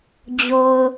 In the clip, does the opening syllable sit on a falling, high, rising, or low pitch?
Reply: low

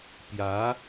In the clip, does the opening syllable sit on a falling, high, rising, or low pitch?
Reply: rising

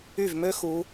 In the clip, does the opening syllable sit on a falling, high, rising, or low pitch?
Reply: falling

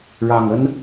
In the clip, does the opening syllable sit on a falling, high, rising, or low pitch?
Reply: low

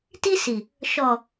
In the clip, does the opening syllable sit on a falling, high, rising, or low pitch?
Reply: high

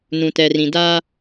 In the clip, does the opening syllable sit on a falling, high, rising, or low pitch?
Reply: low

